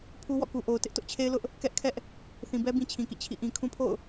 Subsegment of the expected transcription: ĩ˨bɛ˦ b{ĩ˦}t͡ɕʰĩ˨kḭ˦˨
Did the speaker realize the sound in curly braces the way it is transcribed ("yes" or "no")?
yes